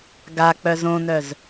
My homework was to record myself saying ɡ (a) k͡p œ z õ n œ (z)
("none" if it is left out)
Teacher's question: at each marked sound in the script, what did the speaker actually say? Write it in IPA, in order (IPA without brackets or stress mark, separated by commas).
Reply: a, z